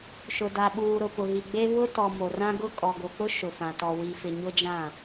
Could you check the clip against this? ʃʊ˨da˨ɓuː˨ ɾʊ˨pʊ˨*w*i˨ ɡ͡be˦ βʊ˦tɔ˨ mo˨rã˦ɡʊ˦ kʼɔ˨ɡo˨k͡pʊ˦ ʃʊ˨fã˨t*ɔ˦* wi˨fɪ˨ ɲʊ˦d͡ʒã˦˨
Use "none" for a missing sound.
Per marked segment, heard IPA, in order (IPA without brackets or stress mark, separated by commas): ɣ, ɔ˨